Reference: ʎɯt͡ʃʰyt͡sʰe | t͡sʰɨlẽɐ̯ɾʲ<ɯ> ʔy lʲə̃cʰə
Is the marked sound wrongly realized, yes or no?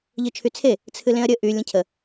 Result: yes